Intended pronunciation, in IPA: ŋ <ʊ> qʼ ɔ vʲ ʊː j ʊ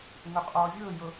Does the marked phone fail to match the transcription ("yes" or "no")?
no